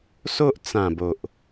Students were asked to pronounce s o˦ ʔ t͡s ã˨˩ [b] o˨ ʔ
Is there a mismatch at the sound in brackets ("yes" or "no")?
no